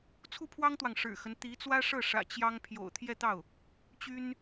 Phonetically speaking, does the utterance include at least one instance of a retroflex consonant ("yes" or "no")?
yes